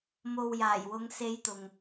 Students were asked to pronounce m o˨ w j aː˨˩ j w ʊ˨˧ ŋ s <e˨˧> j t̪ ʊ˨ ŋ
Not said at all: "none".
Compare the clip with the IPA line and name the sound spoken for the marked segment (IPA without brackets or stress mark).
e˨˧